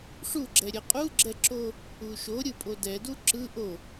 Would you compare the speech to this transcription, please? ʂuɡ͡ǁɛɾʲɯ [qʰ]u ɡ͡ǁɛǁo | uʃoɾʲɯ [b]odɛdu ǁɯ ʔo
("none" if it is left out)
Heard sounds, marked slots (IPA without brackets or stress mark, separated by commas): qʼ, pʼ